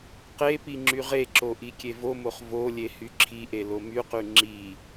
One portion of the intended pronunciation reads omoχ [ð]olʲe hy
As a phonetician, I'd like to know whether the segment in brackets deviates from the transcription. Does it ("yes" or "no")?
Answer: yes